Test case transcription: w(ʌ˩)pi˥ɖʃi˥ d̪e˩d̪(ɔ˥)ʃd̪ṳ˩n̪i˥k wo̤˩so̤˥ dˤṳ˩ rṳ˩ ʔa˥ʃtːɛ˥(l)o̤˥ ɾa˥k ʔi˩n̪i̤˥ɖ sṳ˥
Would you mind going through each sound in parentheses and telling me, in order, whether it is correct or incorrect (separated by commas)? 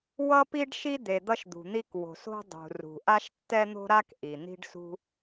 incorrect, incorrect, incorrect